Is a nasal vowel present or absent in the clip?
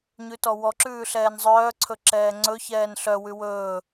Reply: absent